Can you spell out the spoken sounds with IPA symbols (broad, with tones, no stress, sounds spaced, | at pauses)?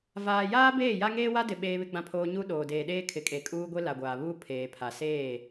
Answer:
v aː˨ j aː˦ b eː˦˨ j a˦ ŋ eː˦ w a˦ d ɪ˨ ɓ eː˦ β ɪ˦ ɡ͡b ã˦ pʰ oː˦ ɲ u˦ ɗ oː˨ d eː˨ ɗ eː˦ kʰ ɪ˨ kʼ e˨ kʼ uː˦ ɡʷ e˦ l a˨ ɡʷ aː˨ β uː˦ pʰ eː˨ pʰ a˨ s eː˦˨